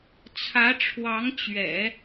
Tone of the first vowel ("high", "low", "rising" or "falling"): rising